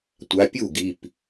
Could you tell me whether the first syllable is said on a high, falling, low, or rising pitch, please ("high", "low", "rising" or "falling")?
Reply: rising